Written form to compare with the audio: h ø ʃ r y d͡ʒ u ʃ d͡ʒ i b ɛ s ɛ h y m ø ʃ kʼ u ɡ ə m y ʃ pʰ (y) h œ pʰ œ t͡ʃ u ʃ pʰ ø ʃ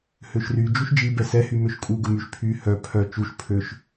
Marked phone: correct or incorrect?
correct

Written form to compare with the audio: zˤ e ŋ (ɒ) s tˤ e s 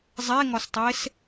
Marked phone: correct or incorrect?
correct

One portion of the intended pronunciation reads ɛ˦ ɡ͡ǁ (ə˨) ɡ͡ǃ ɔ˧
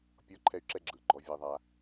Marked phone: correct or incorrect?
incorrect: ɯ˨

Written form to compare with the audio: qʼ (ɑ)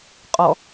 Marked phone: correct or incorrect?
incorrect: ɔ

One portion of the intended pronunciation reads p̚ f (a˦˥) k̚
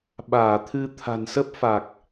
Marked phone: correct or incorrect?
incorrect: a˨˩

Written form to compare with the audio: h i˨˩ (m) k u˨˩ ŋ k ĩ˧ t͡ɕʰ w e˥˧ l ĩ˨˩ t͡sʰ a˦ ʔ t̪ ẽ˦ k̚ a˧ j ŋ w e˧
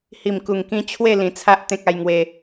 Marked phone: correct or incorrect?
correct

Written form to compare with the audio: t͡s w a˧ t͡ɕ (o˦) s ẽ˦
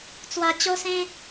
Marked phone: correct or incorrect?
correct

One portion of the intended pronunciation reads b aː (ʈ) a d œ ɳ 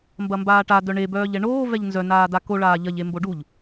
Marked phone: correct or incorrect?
correct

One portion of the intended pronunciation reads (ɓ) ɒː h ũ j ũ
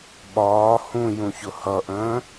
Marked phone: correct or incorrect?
correct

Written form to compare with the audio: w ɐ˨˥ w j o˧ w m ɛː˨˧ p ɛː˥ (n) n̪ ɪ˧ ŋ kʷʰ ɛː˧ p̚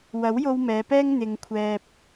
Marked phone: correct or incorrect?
incorrect: ŋ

